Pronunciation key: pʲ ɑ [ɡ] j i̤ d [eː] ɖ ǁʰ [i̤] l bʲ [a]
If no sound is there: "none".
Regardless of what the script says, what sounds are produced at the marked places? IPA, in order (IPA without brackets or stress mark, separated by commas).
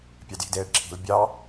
d, eː, i̤, ɑ